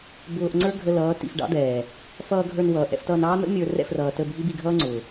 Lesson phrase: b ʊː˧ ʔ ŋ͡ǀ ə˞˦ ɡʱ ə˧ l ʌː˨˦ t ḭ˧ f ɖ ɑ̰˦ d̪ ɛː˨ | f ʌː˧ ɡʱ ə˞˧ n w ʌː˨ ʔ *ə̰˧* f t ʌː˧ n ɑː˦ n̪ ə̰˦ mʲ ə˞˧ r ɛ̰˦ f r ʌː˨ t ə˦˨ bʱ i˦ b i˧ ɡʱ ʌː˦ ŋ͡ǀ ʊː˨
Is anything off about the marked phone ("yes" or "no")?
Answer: yes